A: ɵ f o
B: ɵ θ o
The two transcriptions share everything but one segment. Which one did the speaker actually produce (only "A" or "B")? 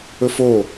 A